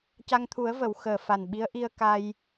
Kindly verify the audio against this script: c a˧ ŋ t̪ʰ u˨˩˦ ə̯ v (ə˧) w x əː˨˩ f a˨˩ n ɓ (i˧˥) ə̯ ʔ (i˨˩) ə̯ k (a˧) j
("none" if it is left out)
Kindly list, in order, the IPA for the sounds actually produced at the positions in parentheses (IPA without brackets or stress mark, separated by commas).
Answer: ə˨˩˨, i˧˥, i˧, a˧